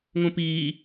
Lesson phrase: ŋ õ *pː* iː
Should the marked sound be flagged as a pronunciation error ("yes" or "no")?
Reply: yes